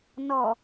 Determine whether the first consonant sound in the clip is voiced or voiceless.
voiced